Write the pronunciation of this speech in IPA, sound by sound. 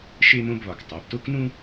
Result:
ʃ e˥ m õ˥ b β ɒ˩˧˩ k tˤ æ˩˧˩ b t o˥ k n ũ˥

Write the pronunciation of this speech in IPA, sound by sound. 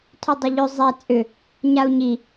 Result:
tʰ ʏ dˤ ə ʎ ʏ zˤ ɛ t͡sʼ ʏ | ɲ a u̯ ɲ i

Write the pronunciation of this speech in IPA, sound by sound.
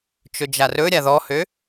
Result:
t͡ʃ ɵ d͡ʒ a r ɵ ɾʲ a ð ɔ h ø

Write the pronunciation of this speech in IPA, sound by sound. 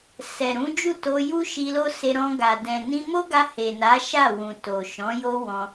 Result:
s ɛ˨ ɾ ũ˨˦ d͡ʒ u˦˨ t o˧ j u˦ ʃ i˧ l o˦ s e˧ ɾ ɔ̃˧ ɡ a˨ d ɛ̃˨ n ĩ˧ m o˦ ɡ a˧ h e˨ n a˨˦ ʃ a˦˨ w ũ˨ t o˨ ʃ ɔ̃˨˦ j o˦ w ɔ̃˧

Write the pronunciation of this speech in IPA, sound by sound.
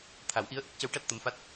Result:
t̪ʰ a˨˩˦ w ʔ i˧˥ ə̯ ʔ ə˦˥ k̚ c ə˧˥ w ʈ a˦˥ t̚ t̪ ə˧˥ m f a˦˥ t̚

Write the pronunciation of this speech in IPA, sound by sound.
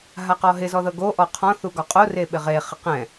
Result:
ɦ a q ɔ ɦ ɪ z ɔ ð ɤ ɡ o ʔ ɔ qʰ ɔ̃ θ u ɡ ɒ qʼ o r e ɓ ɪ ʁ e χ ɪ q ɛ̃

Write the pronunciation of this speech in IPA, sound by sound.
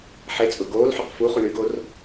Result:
ħ e t͡sʼ ʊ ɡ oː l ħ ʊ q f u χ u ɳ y ɡ o r

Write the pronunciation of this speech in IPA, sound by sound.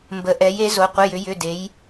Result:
m b ə˩˧ ʔ ɛ˩˧ j e˩˧ z o˩˧ qʷ ə˩˧˩ j ʏ˩˧ j ʏ˩˧˩ d e˩˧ j

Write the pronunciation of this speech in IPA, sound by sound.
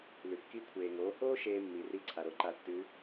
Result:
l ʉ˩ kː i˧˥ kʷʰ eː˩ ŋ oː˩˧ h oː˥ ʃ eː˥ mː i˩˧ r i˧˥ ǀʰ a˩ ɾ o˧˥ ǃ a˧ tː ʉ˧˥

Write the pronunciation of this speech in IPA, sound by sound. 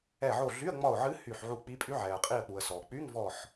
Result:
ɛ˧˩ ʕ o˧˩ ɮ y˧˥˧ ə̯ ŋ͡m ɒ˧˩ ʊ̯ ʕ ɨ˧˥ h y˧˩ ħ ʕ u˧˩ k͡p i˧˥ pʼ y˧˥ ʕ ɛ˩ ə̯ qʼ i˧˩ ə̯ k͡p u˩ ə̯ s ɔ˩ k͡p y˧˥˧ ŋ v ɔ˧˩ ħ

